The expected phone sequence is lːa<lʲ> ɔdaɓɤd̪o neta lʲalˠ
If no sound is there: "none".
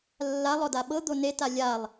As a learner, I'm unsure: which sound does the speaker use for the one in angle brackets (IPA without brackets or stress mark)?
lˠ